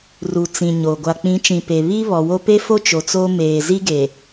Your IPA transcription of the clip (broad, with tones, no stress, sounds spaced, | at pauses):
r u˨ t͡s ĩ˨ ɲ o˨ ɡʷ a˨ k͡p ĩ˨˦ t͡ʃ ĩ˨ p e˨ β i˦ β ɔ˨ w o˦ p e˦ f o˦ t͡ʃ o˨ t͡s o˦ m eː˨ z i˦ ɡ e˨